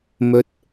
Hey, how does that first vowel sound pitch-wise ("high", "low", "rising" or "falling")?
rising